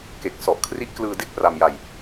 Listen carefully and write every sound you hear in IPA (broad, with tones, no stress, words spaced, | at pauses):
ke˨˩k̚sɔ˨˩ʔkʰri˦˥ʔklɯː˧ de˥˩k̚pra˧m ja˧j